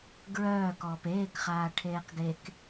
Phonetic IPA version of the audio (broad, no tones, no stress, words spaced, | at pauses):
ɡɹœː kɔːpeːkχaː ʈʰeːqɡek